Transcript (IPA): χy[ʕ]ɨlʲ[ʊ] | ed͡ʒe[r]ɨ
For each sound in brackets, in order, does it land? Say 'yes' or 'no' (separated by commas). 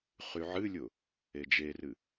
yes, yes, yes